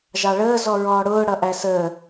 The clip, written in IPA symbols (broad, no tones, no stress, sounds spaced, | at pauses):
ʒ ɑ ɭ əː z ɔ ɹ ɔː ɽ ʊː ɽ ʌ ʔ æ s əː